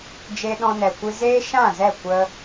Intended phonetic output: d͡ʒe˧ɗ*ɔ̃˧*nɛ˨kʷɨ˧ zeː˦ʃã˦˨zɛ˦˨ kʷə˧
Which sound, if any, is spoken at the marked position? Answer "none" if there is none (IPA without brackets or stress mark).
ɔ̃˧